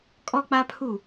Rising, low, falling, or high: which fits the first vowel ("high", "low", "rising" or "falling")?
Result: high